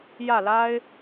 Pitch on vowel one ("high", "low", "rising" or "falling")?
falling